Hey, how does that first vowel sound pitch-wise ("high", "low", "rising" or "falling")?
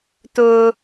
high